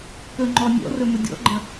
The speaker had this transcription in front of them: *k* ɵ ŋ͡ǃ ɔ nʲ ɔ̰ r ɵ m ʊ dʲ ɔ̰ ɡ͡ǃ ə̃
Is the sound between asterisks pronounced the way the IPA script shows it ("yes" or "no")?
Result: yes